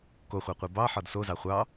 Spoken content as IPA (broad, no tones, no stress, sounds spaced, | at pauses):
k o χʷ ɑ qʷ i b ɑ ħ ɒ d s o z ɑ χʷ ɑ